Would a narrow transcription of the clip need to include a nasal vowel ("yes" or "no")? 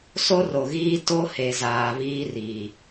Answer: no